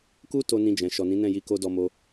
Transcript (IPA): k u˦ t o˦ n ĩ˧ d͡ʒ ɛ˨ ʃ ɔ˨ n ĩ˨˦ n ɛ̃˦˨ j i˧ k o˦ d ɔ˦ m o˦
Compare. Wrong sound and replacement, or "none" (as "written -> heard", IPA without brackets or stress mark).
ɛ˨ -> ɛ̃˨